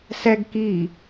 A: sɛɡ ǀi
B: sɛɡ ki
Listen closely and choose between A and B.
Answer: B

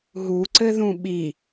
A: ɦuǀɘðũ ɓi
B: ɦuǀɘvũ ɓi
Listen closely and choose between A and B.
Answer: A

